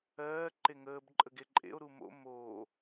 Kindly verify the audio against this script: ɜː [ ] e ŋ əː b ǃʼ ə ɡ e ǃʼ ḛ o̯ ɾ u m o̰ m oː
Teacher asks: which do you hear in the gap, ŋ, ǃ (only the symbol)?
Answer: ǃ